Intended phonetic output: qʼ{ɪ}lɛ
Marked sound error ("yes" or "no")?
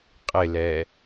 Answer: no